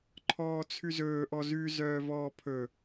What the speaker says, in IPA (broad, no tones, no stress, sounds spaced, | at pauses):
ǃʰ ɔː t͡sʰ ʉ z ɵː ʔ ɔ z ʉ z œː v ɔː pʰ ɵ